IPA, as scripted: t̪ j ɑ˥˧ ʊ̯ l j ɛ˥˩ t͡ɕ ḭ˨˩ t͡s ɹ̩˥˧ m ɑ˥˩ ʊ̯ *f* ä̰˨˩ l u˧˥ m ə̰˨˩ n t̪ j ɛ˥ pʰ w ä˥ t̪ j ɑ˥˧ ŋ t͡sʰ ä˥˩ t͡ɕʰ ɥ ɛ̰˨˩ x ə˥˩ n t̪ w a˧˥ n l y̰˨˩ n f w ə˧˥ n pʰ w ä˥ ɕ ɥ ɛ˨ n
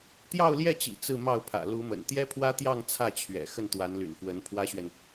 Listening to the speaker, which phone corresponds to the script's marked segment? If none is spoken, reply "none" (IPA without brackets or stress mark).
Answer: pʰ